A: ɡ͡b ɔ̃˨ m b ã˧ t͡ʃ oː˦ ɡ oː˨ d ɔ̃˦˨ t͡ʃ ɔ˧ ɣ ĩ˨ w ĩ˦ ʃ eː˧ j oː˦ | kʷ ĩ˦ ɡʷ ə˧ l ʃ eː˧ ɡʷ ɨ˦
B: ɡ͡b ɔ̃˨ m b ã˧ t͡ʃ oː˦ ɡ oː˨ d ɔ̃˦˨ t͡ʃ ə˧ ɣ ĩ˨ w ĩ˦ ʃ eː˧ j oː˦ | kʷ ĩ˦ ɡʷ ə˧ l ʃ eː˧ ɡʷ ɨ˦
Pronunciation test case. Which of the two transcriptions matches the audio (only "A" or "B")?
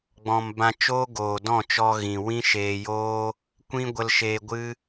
A